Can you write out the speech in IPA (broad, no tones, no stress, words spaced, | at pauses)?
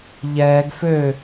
ʎɛːɡ fø